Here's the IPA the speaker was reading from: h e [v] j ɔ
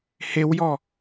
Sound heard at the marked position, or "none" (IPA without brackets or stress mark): w